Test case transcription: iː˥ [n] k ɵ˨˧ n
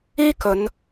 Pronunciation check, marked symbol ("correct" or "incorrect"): incorrect